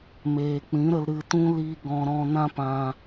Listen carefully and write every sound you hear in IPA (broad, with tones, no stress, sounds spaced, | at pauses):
m eː˨ k͡p ĩ˨˦ ɾ ə˧ l ɾ ɨ˧ t ũ˦ l i˧ ɡ ɔ̃˧ ɾ ɔ̃˧ n ã˦ p ã˧